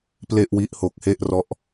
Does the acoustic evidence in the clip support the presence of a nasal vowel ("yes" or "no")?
no